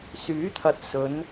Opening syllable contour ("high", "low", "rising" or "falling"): rising